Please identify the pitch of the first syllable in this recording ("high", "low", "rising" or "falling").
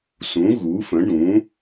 rising